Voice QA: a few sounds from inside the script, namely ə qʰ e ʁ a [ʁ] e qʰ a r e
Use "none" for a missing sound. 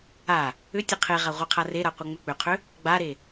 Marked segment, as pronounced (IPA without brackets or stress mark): ʁʷ